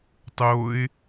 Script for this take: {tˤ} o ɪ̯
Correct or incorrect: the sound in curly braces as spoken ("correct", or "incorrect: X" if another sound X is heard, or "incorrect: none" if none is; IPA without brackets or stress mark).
correct